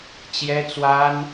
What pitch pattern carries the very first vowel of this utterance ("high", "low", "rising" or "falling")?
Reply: high